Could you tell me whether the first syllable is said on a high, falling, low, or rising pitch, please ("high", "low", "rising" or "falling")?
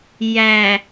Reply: low